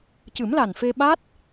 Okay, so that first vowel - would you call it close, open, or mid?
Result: close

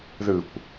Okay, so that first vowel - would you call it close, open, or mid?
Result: close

